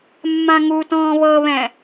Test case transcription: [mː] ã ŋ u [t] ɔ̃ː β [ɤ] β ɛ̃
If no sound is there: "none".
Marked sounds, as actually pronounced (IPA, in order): mː, t, ɤ

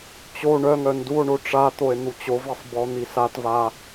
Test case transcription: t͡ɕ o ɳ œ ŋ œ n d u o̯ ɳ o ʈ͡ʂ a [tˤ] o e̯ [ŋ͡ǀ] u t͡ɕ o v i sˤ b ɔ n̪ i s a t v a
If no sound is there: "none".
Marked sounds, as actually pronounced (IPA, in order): t̪, n̪

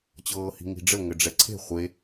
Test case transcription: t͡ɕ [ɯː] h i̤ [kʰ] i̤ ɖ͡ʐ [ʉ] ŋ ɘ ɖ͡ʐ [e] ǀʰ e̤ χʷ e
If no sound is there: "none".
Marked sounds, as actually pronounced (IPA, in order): ɤː, ŋ, ɘ, ɛ

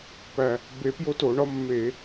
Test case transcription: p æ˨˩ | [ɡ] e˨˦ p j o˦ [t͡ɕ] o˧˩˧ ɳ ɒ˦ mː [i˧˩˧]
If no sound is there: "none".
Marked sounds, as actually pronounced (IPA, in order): b, t, e˧˩˧

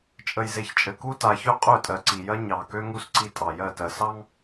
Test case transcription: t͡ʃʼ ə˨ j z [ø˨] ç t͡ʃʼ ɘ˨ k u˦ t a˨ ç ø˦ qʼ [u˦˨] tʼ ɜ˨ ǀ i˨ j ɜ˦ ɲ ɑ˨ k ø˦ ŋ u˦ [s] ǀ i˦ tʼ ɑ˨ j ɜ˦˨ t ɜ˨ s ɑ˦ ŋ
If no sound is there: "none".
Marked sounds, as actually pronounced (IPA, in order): e˨, ø˦˨, s

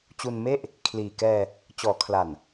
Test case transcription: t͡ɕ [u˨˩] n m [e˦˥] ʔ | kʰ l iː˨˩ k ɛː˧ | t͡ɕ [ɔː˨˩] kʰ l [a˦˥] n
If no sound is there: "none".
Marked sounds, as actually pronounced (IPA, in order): u˧, e˥˩, ɔː˩˦, a˨˩

